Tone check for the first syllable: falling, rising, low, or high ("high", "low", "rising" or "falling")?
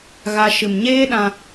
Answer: high